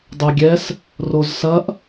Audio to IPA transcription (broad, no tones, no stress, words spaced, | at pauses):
dˤeɡʲɛs | rozsɐʔ